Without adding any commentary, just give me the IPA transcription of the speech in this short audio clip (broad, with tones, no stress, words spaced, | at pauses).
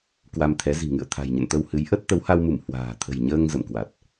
kwa˧mt̪ʰɛ˨˦ zi̤˨˩ŋɨ̰˧˨ə̯t̪ʰa̤˨˩jɲə̰˧˨n t̪ə˧whɨ˨˦j ʔə˦˥t̚ t̪ə˨˦wha˧wmu˧˩m hwa̤ː˨˩ t̪ʰə̤˨˩jɲəː˧ŋ zə̰˧˨mkwa˨˩t̚